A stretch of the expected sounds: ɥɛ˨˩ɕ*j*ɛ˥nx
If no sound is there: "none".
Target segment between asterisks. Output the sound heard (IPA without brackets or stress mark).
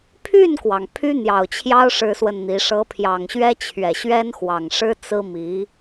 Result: ɥ